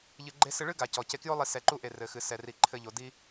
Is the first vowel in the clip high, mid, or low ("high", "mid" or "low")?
high